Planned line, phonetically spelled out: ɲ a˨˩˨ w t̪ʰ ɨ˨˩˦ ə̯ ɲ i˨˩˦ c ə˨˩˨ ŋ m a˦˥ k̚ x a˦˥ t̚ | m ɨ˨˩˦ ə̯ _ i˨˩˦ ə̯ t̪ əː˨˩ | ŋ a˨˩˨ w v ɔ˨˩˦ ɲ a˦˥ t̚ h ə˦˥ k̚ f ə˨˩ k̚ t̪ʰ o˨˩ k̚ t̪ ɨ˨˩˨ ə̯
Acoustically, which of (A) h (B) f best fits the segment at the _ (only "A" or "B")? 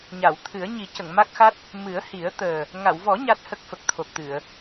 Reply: A